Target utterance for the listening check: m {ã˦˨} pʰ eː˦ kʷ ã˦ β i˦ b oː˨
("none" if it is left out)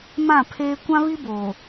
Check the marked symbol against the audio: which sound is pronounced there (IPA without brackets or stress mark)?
ã˦˨